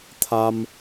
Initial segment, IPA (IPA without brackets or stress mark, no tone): t̪ʰ